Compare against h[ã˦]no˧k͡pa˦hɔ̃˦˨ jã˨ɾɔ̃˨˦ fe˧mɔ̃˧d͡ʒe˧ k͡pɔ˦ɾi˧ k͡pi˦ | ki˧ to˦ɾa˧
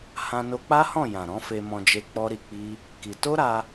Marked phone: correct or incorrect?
incorrect